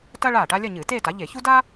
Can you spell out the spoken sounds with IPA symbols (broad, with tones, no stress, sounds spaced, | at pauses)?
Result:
t ɐ˥ ɭ aː˥˩ ʈ a˥ lʲ ɐ˥˧ ɲ ɨː˧˩˧ t eː˥˧ t a˩˥ ʎ e˧˩˧ ç u˥ d aː˥